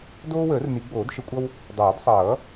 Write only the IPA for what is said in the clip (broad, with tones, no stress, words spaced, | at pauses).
doː˦wəː˨˩˦r ni˨˩˦ɡ͡boː˨˩˦dʃə˨˩˦kʷʼʌ˦w | dˤoː˨˩˦dsˤʌː˨˩˦